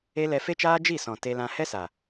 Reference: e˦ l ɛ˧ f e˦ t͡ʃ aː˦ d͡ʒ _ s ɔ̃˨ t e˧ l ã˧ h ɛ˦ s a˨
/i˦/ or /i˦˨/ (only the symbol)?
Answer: i˦˨